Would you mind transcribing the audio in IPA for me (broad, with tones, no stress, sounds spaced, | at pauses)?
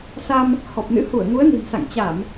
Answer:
s a˧ m | h ɔ˨˩ p̚ n ɨ̰˧˥ h u˧˩ ə̯ ŋ u˨˦ ə̯ n i̤˨˩ m s a̰˧˨ ŋ t͡ɕ a˧˩˨ m